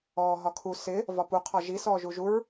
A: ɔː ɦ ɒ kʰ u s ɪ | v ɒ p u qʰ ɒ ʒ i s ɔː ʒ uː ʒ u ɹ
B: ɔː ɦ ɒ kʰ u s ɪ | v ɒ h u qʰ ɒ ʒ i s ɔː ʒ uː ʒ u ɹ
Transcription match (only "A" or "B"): A